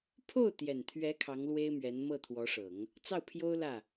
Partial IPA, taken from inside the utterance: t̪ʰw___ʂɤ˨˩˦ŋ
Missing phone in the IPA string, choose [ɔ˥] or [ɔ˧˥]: ɔ˧˥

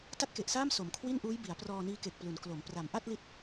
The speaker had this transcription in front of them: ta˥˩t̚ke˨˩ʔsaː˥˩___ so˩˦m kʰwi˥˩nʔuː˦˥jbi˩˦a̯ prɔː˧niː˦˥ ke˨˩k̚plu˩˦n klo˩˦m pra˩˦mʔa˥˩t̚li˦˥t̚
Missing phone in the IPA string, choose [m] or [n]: m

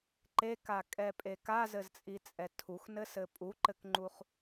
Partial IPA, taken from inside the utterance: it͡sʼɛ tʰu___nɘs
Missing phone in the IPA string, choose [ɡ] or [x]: x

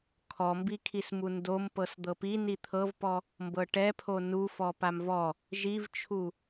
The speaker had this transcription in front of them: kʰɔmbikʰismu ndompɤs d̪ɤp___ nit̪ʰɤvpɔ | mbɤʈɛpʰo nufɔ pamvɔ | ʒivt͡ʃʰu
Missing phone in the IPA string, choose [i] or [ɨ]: i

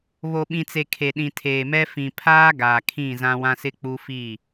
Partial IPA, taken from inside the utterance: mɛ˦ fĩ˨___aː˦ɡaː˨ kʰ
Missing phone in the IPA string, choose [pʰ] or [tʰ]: pʰ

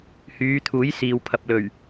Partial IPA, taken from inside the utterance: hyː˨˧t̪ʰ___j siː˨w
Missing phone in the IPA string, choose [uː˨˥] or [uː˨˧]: uː˨˥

